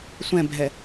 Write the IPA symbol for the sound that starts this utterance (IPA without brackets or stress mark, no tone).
sʷ